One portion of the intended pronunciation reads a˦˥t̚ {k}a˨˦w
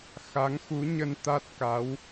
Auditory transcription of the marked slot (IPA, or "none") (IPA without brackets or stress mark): k